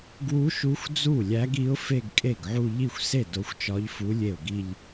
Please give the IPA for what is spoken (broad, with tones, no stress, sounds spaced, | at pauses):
ɡ w u˧˥ ʃ u˧˥ xʷ d͡z u˥˩ lʲ æ˧˥ ɡ i˧˥ ʊ̯ f e˥˧ ɡ kʼ e˥˩ ɡ ʕ u˥˧ ʎ i˥˩ xʷ s e˥˩ d o˧˥ xʷ t͡ʃ ɒ˧˥ ʎ f u˧˥ lʲ e˥˩ ʊ̯ ɡ i˥˧ ʎ